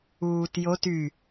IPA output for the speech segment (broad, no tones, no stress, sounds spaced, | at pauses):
uː t j o t y